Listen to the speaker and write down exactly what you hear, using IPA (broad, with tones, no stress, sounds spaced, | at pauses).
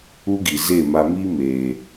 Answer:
u˦ ɡ i˨ z e˦˨ m a˧ m i˦ m eː˨